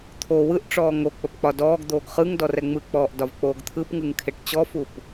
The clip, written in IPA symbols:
t̪ʰ o w ɯ ʔ ʈ͡ʂ ɔː ŋ o k͡p ə p k͡p ɒ d ɔː ɡ d̪ oː ɡ χ ɯ ŋ d ɔ r ɛ ŋ͡m ɯ k͡p ɔː ʔ d ɒ v k͡p oː ɡ t̪ʰ ɯ p ŋ ɯ ŋ kʰ e ʈ t͡ɕ ɔ f u p

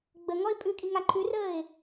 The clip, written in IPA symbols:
ɡ͡b ə ŋ ɔ ɪ̯ pʼ ʉ kʼ i ŋ a ǃʰ ʉ r əː ɪ̯

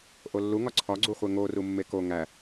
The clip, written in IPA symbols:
ʔ o lː u ŋ ɒ ǀʰ ɒ ɡ͡ǀ u χʷ e ŋ o r u mː e k o ŋ æ

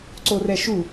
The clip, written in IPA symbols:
ǀ o r ɛ ʃ u

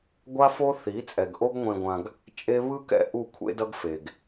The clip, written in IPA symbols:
ɡʷ a˦ f o˦ θ i˨˦ t͡sʼ ɛ˨ ɡ ʔ o˦ ɡ ŋʷ ẽ˧ ɡʷ ã˧ ɡ | t͡ʃʼ e˦ β ɯ˦ k ɛ̰˧ ʔ u˦˨ kʷʰ ḛ˦ d ʌ˦ ɡ f e˨ ɡ

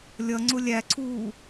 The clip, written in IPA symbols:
lʲ ʌ ŋ͡ǀ ʊ lʲ æ ǀʰ uː

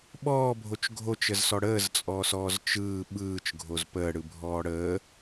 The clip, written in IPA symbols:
ɓ ɔː bʱ o t͡ʃ ɡʱ o t͡ʃ ə z s ɔ ɽ əː z t͡sʼ ɔː s ɔː z t͡ʃ ɯː ɓ ɯː t͡ʃ ɡʱ o z p əː ɽ ɯ bʱ ɔː ɽ əː

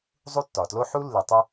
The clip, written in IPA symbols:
zˤ u˥ tː ɒ˩ t l o˥ ħ u˥ lː i˨ tˤ u˦

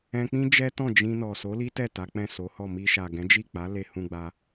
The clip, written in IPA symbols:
ɛ̃˧ k͡p ĩ˦ d͡ʒ ɛ˦ t ɔ̃˦˨ d͡ʒ ĩ˧ n ɔ˨ s o˨˦ l i˦ t ɛ˦˨ t a˨˦ k͡p ɛ̃˦˨ s o˨˦ h ɔ˦˨ m i˧ ʃ a˨ ɡ ɛ̃˨˦ d͡ʒ i˦˨ k͡p a˨˦ l e˧ h ũ˧ ɡ͡b a˧

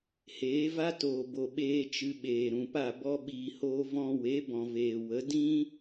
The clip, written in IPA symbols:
h eː˨˦ v a˦ t oː˨ b o˨ ɓ eː˧ t͡ʃ ɨ˧ ɓ eː˨ ɾ ũ˨ p a˦˨ b ɔ˧ ɓ iː˨ h oː˧ v ɔ̃˧ w e˨˦ b ɔ̃˨ v eː˨ w ə˨˦ d ĩ˦

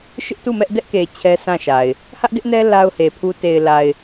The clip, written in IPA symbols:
ʃ ɪ˦ ʔ t u˦˨ m ɛ˦ ʔ d ɛ˦ ʔ k e˨ t͡ɕʰ ɛ˦ s ã˦˨ ʃ a˨ ɪ̯ | h ä˦ ʔ d ɪ˦ ʔ n ɛ˦ l a˦ ʊ̯ h e˨ pʰ u˦ t e˨ ɪ̯ l a˨ ɪ̯

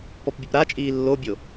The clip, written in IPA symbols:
p ɔ p bʲ ʉ p ɾ a t͡ʃʼ iː lː o bʲ o

